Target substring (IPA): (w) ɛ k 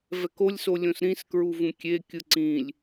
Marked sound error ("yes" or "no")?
yes